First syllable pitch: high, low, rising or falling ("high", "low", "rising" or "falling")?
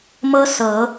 high